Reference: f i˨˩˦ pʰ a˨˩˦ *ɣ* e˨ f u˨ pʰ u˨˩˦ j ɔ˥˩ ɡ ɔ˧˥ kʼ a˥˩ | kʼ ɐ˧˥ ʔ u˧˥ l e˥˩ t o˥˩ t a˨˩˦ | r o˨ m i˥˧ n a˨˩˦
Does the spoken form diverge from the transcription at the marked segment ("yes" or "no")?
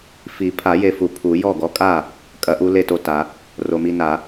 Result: yes